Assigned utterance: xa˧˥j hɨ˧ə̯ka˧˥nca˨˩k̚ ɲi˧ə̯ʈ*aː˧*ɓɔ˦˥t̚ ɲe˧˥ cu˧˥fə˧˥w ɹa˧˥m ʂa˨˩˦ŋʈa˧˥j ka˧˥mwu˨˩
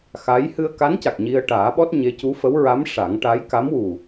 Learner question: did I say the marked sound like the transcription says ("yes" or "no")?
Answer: no